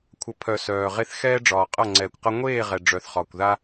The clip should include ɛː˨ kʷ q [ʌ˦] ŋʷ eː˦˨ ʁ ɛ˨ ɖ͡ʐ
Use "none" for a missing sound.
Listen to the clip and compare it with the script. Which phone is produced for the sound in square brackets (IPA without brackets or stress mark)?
ʌ˧